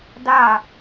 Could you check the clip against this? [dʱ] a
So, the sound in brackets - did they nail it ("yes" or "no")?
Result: no